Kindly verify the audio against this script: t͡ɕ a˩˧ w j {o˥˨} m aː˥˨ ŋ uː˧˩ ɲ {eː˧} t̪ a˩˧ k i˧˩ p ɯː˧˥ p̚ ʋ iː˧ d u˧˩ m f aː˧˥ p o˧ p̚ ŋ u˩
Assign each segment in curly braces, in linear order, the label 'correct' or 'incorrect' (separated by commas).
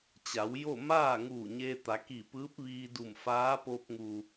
correct, correct